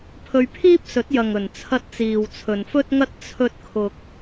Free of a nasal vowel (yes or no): yes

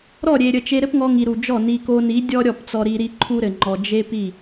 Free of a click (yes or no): no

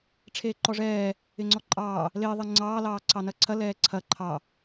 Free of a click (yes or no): no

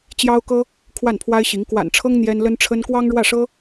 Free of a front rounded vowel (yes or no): yes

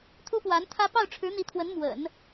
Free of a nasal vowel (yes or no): yes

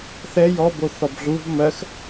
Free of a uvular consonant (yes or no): yes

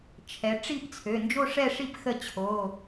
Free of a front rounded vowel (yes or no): no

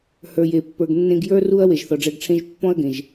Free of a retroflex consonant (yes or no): no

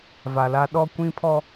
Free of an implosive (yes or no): no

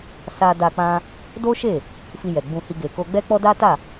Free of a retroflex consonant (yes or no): yes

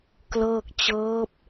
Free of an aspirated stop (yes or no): yes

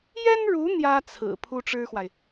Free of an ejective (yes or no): yes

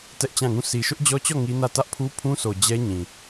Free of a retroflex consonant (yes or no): yes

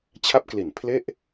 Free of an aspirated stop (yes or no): no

